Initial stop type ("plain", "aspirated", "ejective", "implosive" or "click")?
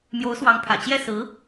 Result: aspirated